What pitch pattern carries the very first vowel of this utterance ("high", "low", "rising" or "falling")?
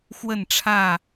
falling